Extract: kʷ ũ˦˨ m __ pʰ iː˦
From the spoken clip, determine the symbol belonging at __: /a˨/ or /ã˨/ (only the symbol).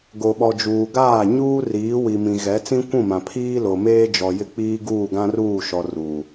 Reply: ã˨